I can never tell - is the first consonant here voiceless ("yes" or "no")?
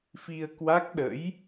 yes